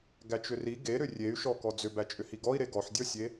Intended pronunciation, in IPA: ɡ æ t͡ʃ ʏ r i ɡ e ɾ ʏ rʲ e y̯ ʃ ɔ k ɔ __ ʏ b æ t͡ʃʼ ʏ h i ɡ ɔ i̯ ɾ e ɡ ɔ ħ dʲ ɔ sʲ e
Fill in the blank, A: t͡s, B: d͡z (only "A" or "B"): B